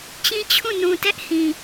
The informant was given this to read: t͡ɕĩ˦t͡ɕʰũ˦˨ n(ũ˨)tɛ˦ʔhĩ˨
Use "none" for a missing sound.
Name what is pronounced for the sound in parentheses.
ũ˨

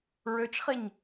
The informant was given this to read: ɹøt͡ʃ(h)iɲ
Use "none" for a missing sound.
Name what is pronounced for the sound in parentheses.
χ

